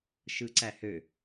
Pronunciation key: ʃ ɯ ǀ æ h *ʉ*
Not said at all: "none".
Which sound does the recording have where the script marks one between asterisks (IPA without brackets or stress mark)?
ø